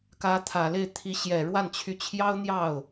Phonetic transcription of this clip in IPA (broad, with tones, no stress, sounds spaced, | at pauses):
k ä˧˥ t̪ʰ ä˨˩ l e˥˩ ɪ̯ t̪ʰ i˧˥ ɕ j ɛ˨˩ ɻ w a˥˩ n t͡ɕʰ y˧˥ t͡ɕʰ j ɑ˥ ʊ̯ n̪ j ɑ˥˩ ʊ̯